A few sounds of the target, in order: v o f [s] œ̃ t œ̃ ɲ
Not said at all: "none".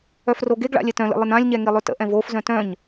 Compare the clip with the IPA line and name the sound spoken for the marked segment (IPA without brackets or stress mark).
z